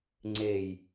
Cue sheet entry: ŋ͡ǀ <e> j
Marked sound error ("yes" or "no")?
no